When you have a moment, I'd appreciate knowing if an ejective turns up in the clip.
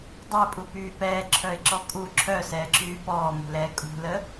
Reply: yes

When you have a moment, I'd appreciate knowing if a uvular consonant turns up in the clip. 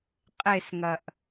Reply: yes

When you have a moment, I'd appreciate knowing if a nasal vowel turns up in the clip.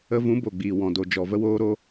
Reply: yes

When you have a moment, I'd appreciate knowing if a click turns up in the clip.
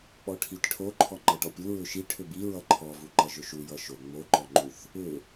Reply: yes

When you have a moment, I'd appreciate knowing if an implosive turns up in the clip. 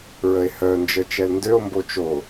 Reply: no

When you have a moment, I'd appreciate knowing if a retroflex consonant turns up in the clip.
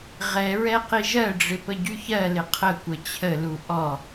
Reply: yes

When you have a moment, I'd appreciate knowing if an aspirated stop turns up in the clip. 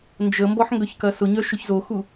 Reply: no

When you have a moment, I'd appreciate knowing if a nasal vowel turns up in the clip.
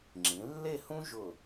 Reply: yes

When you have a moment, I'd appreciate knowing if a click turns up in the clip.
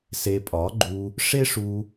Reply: yes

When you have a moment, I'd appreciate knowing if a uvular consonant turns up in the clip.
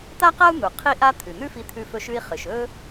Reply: yes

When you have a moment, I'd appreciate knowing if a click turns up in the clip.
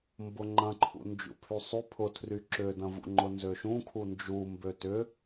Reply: yes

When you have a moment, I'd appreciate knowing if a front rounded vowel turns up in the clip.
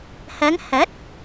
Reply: no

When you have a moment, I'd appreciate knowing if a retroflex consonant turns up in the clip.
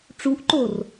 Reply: yes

